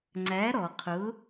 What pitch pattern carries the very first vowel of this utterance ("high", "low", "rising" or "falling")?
rising